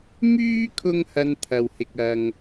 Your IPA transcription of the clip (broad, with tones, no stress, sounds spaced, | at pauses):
m yː˥ kʰ ʊ˥ ŋ h ɐ˧ n t̪ʰ ɐ˨ w h ɪ˨ k̚ ɐ˨ ŋ